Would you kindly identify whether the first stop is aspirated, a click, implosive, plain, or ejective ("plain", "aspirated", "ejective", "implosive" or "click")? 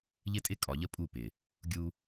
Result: ejective